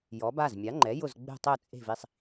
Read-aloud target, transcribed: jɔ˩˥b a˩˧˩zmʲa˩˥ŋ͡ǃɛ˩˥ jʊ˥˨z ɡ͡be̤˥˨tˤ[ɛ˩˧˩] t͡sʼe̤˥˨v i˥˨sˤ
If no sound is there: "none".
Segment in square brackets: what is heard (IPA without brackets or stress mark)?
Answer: ɛ˥˨